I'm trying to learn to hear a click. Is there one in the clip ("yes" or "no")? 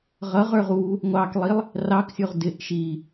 no